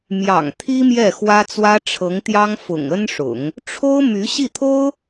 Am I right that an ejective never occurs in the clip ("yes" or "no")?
yes